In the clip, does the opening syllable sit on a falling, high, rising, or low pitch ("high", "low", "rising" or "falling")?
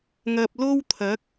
low